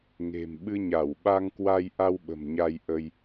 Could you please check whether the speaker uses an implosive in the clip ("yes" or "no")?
yes